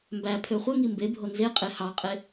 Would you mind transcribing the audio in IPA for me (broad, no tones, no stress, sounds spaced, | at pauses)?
m b æ pʰ ø χʷ e ŋ i m b e bʱ o n z e qʼ e h ɑ qʼ e